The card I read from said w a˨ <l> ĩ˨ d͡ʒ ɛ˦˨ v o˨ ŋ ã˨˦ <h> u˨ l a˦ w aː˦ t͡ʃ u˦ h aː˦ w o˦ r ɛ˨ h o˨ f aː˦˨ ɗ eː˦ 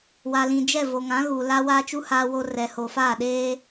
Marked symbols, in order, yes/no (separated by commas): yes, no